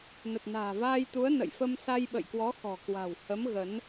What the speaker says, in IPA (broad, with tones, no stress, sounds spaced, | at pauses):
n ə˨˩ t̚ n a̤ː˨˩ v aː˧ j t̪ u˨˦ ə̯ n ə̰˧˨ j f ə˧ m s a˧ j ɓ ə̰˧˨ j k w ɔ˨˦ x ɔ̤˨˩ k w a̤˨˩ w h ə˨˦ m ɣ ə˨˦ n